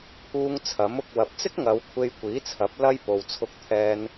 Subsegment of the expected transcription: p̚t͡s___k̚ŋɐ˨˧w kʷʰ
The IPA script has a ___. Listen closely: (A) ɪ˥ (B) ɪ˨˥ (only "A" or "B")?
A